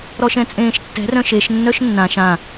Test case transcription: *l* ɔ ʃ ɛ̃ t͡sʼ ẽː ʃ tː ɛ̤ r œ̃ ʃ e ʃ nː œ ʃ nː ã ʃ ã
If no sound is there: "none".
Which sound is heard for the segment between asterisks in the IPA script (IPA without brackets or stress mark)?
ɾ